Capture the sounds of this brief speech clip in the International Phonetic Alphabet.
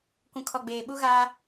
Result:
kʷ ũ˨ kʰ ɔ˨ ɡ͡b eː˨ ɓ u˦ ɣ aː˦

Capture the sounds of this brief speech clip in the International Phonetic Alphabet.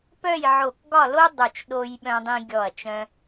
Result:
p œ˥˧ j ʕ o˧˩ k ɡ ɒ˥˧ l o˥ dˤ o˧˩ t͡ʃ ɗ o˧ j ɓ œ̃˧ dˤ ĩ˧ ɡʲ ɔ˧˩ ɐ̯ t͡ʃ œ̃˧

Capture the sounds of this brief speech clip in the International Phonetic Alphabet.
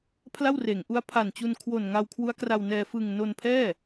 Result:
pʰ l a˥˩ w r eː˩˦ ŋ ʔ u˦˥ a̯ pʰ a˨˩ n t͡ɕ u˧ n kʰ w o˨˩ n ŋ a˧ w kʰ w u˦˥ a̯ k r a˧ w n ɛː˧ f ɯ˨˩ ŋ n o˧ n pʰ ɛː˥˩

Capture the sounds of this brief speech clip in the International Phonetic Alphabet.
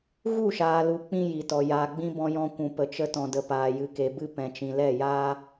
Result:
ɣ u˦˨ ʃ aː˨ l u˨ k͡p ĩ˧ j i˨ t ɔ˨ j aː˨ ɡ͡b ĩ˧ b ɔ̃˧ j ɔ̃˧ kʷ ũ˨ p ə˨ t͡ʃ ə˧ t ɔ̃˨ d ə˨ p aː˨ j ɨ˨ k e˨ b ɨ˧ p ɛ̃˨ t͡ʃ ĩ˨ l ɛ˦˨ j aː˦

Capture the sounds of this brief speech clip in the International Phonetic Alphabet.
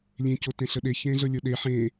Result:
lʲ ẽ c o t ẽ ɬ ə ɗ e ç ẽː ɮ ɤ lʲ o ɗ e ħ ẽ

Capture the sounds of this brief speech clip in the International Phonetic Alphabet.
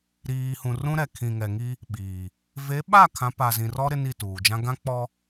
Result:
ɾ iː˨ h ũ˨ r ũ˦ ɾ ɛ˨ kʰ ĩ˨ ŋ ɛ˨ ŋ i˦ | ɓ iː˨ | v e˨˦ ɓ a˦˨ kʰ ã˨˦ p a˨ z ĩ˨ r ɔ˦ ɾ ɪ˦ n i˦˨ t uː˨ d͡ʒ ã˦ ɡ ã˦ k͡p ɔ˦

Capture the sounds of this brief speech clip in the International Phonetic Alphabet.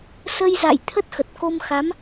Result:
s ə˧ j z a̰˧˨ j t̪ʰ ə˦˥ t̚ x ə˨˩ t̚ k o˧ m x a˨˦ m

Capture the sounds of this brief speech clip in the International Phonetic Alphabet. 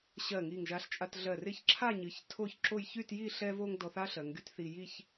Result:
ɕ ɜ˧˩ ŋ i˧˩ ŋ ʒ a˧ ɬ t͡ʃʼ a˧ t ɮ ɜ˧˩ r ɪ˥˧ ç ǁʰ a˥˧ ɲ ɨ˩˧ ç tʰ o˥˧ ç ǁ o˥˧ j ç y˥˧ t j i˥˧ ɬ ɛ˥ v o˥ ŋ d ɔ˧ θ a˥ ɬ ɜ˩˧ ŋ ɡ y˥ t θ i˧ j i˥˧ ç

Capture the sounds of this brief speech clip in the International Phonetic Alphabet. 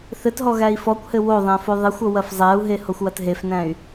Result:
θ ɘ t ɦ ɔ ɣ æ i̯ f ɔ kʷ h ɘ w o ðˤ æ̃ f o ðˤ ɘ xʷ o w ɐ f zˤ æ u̯ ɦ e h o xʷ w ɐ t ɦ e f n æ̃ y̯

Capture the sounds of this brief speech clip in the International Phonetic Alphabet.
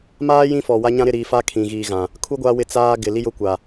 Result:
m aː˦ j ĩ˦ f ɔ˨ w a˦ ɲ ã˦ ɾ ɪ˦˨ ɾ iː˨ f a˦ kʰ ĩ˨ ɣ iː˨ ɣ ã˨ | kʰ u˦ ɡʷ a˦ w ɪ˦ t͡s aː˦ ɡ ɪ˨ l i˦ j ʊ˦ kʷ a˨

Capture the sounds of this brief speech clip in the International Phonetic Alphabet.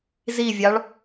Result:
z i vʲ ɑ ɭ

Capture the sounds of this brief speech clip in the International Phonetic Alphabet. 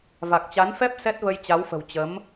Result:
v a˨˩ k̚ t͡ɕ a˨˦ n f ɛ˦˥ p̚ s ɛ˦˥ t̚ v ə˧ j t͡ɕ a˨˦ w f ə̤˨˩ w t͡ɕ ə˨˦ m

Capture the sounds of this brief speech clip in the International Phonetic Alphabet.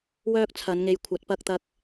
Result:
w œː˥ k̚ t͡sʰ ɐ˨˧ n ŋ e˨˧ j kʷʰ ɐ˨˥ t̚ p ɐ˧ k̚ t̪ ɐ˧ k̚

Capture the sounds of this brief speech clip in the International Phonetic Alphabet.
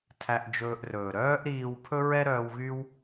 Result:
tʰ æ˧ ʔ d͡ʒ ɵː˧ ʔ r ɵː˨ ɾ œː˦ ʔ ɾ iː˧ w pʰ ɵ˦ ɹ ɛ˦ ɾ œː˧ w ɣ y˦ w

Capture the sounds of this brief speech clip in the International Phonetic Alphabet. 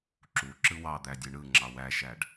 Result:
ǁ u ǁ ɯ w ɑ d̪ æ dʲ ɯ ɳ ɯ ŋ͡ǁ ɑ w æ ʃ æ ɖ

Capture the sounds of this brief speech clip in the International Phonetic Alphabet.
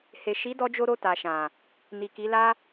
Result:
h e˨ ʃ i˨˦ d ɔ˧ d͡ʒ o˧ ɾ o˧ t a˨ ʃ ã˨ | n i˨ k i˨˦ l a˦

